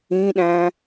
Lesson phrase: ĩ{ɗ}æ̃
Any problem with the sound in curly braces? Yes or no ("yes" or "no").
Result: no